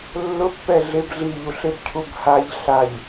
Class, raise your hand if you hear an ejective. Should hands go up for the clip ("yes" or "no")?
no